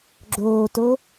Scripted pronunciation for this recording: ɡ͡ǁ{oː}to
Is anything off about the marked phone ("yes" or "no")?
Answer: no